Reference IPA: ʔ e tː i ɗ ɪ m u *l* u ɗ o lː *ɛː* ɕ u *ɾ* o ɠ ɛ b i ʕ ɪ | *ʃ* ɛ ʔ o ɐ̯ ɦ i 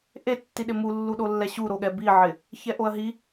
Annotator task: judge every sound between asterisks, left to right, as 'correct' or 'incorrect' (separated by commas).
incorrect, incorrect, correct, incorrect